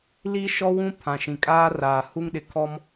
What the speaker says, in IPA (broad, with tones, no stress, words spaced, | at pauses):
li˦ʃɔ˦wũ˦ pʰã˨ʃĩ˨kʼaː˦raː˨ hu˦ŋɗɪ˨kʰɔ˦m